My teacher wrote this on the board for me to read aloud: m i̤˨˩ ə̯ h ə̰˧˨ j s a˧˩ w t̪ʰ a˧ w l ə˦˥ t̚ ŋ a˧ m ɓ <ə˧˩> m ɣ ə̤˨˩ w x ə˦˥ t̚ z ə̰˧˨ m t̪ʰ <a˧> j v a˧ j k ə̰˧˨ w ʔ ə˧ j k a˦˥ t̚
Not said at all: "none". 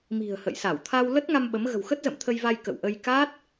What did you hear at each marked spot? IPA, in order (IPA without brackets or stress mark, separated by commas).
ə˨˦, ə˧